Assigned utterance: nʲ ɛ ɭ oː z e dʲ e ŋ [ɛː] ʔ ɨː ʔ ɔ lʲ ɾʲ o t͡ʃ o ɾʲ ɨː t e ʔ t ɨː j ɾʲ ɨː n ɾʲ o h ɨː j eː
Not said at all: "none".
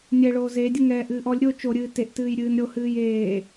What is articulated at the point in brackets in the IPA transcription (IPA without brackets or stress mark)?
ɛː